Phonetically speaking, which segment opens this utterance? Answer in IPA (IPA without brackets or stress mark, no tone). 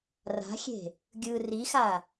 r